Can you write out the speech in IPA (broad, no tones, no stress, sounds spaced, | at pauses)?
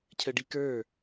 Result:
cʰ ə ɖ i k ə˞